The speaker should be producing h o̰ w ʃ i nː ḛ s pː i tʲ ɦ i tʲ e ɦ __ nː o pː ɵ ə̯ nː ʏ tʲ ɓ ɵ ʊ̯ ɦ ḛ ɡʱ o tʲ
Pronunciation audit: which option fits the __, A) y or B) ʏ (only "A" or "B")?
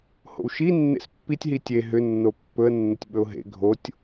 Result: B